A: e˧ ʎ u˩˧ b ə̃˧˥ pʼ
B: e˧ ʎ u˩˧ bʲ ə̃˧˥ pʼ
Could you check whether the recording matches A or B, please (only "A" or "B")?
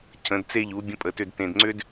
B